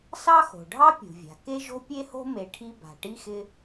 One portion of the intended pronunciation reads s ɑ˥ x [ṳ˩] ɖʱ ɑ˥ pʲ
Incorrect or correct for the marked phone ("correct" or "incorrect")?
incorrect